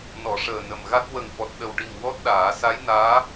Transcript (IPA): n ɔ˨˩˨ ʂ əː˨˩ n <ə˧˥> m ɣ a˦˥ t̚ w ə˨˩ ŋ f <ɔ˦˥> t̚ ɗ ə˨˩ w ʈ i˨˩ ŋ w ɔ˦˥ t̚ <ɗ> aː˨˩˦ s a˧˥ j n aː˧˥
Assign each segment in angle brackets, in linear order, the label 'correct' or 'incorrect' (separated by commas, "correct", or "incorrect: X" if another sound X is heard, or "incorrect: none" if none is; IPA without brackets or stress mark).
incorrect: ə˨˩, incorrect: ɔ˨˩, correct